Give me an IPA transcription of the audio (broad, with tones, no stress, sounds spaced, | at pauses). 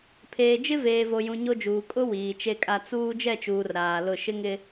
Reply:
pʰ eː˨ d͡ʒ ɪ˦ v eː˨ v o˨ j ũ˨ ɲ o˦ d͡ʒ uː˨ kʼ ʊ˦ w iː˨ t͡ʃ e˦ kʼ a˦ t͡s uː˦ d͡ʒ ɛ˦˨ t͡ʃ uː˨ r ɾ aː˨ l ʊ˦˨ ʃ ɪ˦ ŋ ɪ˦